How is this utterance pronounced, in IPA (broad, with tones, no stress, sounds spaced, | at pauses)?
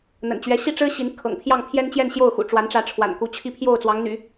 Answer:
n̪ ə̰˨˩ n t͡ɕ ɥ ɛ˧˥ ɕ i˥˩ ʈ͡ʂ ɻ̩˥ ɕ i˧˥ n kʰ ɤ̰˨˩ ŋ pʰ j ɑ˥˩ ŋ pʰ j ɛ˥ n t͡ɕ j ɛ˥˧ n ɕ j o˥˩ ʊ̯ x ṵ˨˩ ʈ͡ʂ w a˧˥ n ʈ͡ʂ ä˧˥ ʈ͡ʂʰ w a̰˨˩ n k u˧˥ t͡ɕʰ i˥ pʰ j o˥˩ ʊ̯ t͡s w ɑ˧˥ ŋ n̪ y̰˨˩˦